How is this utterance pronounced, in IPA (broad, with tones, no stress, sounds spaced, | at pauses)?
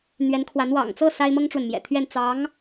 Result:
n̪ ɥ ɛ˧˥ n kʰ w a˧˥ n w ɑ̰˨˩ ŋ t͡s ɤ˥˩ s a˥ ɪ̯ m ɤ˥ ŋ ʈ͡ʂ w ə˨ n m j ɛ̰˨˩ t̪ʰ ɥ ɛ˥˩ n t͡s ɑ˧˥ ŋ